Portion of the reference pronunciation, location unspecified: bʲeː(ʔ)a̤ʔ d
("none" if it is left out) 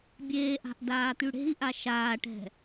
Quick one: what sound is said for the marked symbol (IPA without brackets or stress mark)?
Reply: ʔ